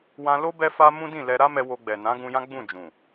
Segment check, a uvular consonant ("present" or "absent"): absent